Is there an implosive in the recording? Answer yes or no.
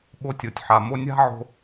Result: yes